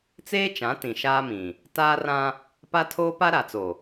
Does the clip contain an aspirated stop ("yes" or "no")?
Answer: yes